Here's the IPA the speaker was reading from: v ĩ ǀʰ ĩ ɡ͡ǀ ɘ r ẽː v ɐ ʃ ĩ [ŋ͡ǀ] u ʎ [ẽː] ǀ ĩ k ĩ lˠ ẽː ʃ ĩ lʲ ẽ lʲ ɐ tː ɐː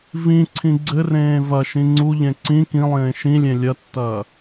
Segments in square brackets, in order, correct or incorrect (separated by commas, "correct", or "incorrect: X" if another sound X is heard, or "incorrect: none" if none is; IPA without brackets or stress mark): correct, incorrect: ẽ